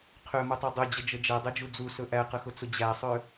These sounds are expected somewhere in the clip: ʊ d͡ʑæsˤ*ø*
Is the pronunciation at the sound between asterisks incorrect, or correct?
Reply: correct